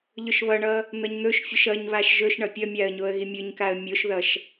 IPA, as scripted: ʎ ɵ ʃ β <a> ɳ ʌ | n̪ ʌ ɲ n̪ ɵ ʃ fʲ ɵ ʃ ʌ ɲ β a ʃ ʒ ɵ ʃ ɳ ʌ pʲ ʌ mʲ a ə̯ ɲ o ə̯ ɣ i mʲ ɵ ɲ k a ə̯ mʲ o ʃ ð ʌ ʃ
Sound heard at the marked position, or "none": ʌ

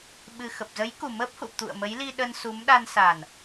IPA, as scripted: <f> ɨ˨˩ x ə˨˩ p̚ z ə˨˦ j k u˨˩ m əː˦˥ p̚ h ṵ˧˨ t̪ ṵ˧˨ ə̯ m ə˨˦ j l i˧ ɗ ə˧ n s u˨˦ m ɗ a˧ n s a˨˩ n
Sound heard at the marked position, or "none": ɓ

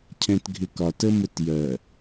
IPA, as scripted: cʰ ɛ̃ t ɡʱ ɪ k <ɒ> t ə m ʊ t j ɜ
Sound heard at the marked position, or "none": ɒ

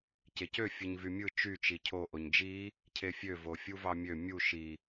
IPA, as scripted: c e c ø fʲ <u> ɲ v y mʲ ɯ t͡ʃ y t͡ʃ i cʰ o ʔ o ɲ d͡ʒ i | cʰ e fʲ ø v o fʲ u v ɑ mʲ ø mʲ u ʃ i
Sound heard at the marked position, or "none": ɯ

